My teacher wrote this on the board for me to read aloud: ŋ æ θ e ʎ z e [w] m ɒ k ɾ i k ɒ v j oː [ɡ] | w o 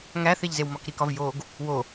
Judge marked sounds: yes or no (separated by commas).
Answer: yes, yes